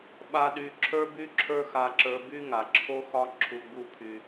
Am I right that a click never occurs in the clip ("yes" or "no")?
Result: no